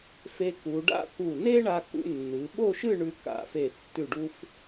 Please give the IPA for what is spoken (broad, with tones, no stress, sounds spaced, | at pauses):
f e˧ k u˩˧ ɖ a̰˥˧ k u˧˩ n e˥ ɳ a˧ k ṵ˧ nː ɨ˩˧ ɓ o˥˧ ʃ ɨ˥˧ ɳ ʉ˧ k a̰˧˩ f e˧˩ tː ʉ˧˩ ɖ u˧ f